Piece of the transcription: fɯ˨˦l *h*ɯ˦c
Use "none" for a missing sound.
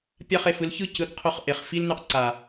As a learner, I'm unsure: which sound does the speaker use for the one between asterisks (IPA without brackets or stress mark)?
ç